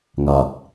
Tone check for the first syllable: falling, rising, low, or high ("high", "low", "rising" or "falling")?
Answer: low